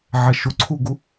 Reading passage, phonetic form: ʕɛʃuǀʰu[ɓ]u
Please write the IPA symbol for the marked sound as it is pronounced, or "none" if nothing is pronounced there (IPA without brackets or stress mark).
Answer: ɡ